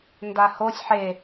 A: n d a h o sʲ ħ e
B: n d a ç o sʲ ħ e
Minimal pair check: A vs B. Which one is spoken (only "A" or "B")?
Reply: A